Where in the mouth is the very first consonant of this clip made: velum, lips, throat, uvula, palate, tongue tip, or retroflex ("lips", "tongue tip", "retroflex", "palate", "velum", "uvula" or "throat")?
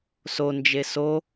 tongue tip